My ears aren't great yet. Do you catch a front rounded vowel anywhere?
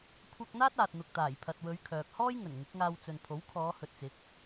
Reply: yes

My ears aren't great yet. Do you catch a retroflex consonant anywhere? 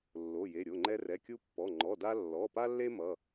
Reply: no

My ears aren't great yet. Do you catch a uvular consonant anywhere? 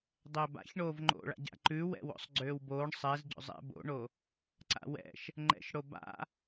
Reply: no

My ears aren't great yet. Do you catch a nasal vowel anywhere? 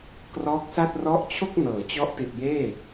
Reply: no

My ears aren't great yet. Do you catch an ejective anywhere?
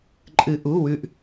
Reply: yes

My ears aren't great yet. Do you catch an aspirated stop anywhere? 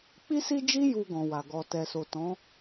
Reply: no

